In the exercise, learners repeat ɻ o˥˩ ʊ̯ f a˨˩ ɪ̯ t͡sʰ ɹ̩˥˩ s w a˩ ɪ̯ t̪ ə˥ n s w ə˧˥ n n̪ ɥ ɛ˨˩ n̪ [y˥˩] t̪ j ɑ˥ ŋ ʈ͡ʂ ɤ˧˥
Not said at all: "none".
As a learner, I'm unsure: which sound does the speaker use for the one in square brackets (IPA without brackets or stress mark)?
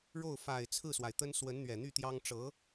y˥˩